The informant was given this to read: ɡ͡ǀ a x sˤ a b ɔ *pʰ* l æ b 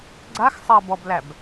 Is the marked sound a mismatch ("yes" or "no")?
yes